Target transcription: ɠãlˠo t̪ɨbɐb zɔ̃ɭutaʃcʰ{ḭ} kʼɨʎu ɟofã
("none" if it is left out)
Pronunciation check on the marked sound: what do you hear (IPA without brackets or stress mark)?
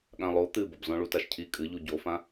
i